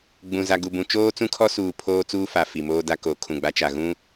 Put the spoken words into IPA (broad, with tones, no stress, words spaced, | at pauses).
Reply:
ɡ͡bũ˨ za˨ɡu˨bũ˨ t͡ʃoː˦t͡sũ˦kʰɔ˦suː˨ pʰoː˦t͡suː˦fa˨ fi˨moː˦da˦ ko˨˦kʰũ˨ɡ͡ba˦t͡ʃa˨ ɣũ˦